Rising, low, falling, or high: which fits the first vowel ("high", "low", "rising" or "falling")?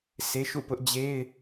high